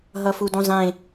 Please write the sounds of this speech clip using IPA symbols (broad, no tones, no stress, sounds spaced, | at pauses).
ɦ ʌ f u d ũ zˤ ẽ